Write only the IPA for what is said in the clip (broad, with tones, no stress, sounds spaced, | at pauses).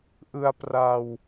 ʔ ɯ˧ a̯ p r a˧ w